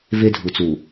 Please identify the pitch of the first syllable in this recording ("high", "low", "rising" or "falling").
high